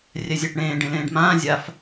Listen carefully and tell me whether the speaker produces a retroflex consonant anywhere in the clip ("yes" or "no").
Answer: yes